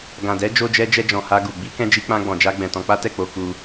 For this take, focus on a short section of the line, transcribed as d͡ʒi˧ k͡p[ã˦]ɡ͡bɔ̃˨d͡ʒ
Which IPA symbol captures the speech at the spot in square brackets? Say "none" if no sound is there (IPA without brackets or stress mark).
ã˧